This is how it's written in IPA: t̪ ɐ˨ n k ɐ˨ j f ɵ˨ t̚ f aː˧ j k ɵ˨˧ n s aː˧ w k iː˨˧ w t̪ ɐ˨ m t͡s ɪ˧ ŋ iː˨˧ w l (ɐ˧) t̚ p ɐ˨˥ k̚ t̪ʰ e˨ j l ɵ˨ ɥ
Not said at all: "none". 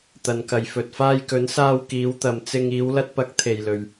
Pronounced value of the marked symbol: ɐ˧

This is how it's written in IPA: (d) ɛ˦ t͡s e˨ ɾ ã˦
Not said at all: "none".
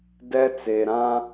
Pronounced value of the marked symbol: d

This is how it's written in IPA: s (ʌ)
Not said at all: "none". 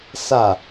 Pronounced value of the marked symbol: a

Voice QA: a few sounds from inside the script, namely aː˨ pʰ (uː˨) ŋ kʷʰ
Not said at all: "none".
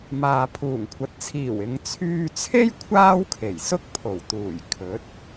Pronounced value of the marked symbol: uː˨˩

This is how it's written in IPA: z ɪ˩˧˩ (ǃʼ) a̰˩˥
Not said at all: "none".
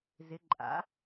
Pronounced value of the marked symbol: ǃʼ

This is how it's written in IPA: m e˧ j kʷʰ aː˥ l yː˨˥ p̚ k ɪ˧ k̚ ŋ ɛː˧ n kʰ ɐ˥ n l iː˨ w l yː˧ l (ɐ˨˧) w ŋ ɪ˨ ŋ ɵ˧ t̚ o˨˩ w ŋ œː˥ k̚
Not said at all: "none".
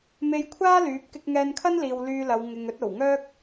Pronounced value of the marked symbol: ɐ˨˧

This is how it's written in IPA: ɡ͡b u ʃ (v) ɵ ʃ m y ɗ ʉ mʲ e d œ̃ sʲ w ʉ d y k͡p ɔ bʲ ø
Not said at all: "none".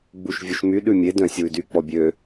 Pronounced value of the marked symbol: vʲ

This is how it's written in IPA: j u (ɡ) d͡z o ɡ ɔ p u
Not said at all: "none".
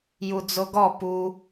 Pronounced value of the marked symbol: none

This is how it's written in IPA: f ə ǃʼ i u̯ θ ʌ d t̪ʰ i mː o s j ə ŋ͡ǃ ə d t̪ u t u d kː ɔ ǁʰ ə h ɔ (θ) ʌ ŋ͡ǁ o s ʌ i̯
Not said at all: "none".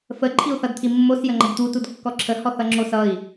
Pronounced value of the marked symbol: θ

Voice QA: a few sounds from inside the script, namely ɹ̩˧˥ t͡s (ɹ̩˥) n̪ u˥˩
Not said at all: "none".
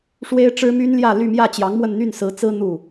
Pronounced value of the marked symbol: ɹ̩˥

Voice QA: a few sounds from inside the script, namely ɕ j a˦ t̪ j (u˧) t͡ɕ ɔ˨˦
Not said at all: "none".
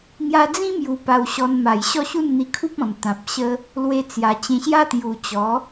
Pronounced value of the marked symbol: u˨˩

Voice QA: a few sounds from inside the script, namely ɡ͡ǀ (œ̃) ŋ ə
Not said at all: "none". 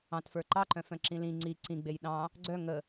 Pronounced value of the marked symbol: œ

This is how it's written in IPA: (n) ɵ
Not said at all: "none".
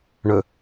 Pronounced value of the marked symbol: ɳ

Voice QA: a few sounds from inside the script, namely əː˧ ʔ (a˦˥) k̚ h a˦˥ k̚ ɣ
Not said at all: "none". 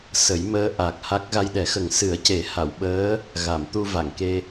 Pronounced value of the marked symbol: a˨˩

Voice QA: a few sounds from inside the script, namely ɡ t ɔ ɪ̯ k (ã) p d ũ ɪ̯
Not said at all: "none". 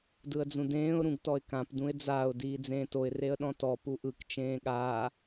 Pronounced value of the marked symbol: ã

